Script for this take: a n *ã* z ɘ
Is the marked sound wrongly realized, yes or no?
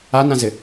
no